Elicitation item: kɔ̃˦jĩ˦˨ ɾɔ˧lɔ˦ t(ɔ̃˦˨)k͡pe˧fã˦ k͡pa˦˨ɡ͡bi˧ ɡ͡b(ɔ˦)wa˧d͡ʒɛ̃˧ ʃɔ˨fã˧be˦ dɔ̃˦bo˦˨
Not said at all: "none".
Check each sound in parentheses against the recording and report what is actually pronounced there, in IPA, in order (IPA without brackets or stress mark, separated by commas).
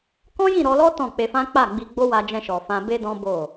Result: ɔ̃˦˨, o˦